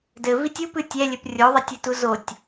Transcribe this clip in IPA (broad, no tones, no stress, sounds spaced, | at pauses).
d ɘ v i tʲ u p ɨ tʲ ɛ lʲ ɘ p rʲ o ðˤ ɐ tʲ ɘ t u z o tʲ